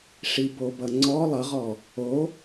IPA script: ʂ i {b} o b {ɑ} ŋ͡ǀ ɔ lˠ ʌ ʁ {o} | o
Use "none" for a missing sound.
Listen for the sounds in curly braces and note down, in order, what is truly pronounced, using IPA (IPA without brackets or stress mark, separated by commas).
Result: b, ʌ, ɔ